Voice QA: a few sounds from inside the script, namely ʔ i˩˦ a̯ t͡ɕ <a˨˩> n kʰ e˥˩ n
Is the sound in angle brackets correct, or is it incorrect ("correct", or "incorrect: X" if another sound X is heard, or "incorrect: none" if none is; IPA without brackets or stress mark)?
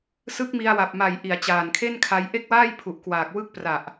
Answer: incorrect: aː˨˩